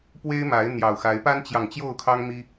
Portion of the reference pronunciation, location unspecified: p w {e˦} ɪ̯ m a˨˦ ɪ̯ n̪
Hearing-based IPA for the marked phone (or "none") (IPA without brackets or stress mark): e˦